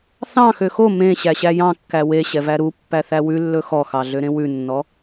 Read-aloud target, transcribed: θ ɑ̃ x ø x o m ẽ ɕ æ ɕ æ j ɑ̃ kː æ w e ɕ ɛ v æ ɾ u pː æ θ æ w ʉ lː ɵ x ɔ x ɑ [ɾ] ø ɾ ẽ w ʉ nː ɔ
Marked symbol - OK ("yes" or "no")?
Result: no